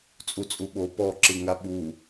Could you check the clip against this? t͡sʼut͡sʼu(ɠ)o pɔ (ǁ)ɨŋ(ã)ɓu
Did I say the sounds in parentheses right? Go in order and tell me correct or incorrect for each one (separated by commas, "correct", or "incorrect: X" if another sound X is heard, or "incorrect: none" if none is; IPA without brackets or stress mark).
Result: incorrect: ɓ, correct, incorrect: a